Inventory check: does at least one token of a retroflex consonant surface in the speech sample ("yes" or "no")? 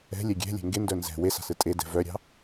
no